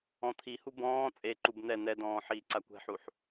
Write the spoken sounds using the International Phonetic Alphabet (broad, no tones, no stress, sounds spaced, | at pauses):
ɔ̃ t̪ʰ i h u b ɔ̃ː t͡sʼ e ǃ u b n̪ ɛ n̪ ɛ d ɔ̃ː ħ iː ǀ a kʷ ɛ̤ ħ u ħ